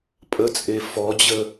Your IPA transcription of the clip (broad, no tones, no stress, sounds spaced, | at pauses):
pʼ ə t͡sʼ e f ɔ d͡ʑ ə